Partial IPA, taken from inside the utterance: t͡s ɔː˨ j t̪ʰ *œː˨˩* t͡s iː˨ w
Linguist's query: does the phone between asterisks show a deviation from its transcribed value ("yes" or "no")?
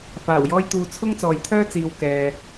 yes